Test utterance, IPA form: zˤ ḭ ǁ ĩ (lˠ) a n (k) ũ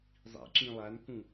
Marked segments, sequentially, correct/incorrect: correct, correct

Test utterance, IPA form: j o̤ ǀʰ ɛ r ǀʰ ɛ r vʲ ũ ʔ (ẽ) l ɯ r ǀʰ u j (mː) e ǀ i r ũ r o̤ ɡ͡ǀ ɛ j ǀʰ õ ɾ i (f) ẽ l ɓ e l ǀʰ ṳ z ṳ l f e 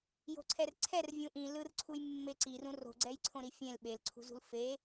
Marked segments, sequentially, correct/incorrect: incorrect: ĩ, correct, incorrect: fʲ

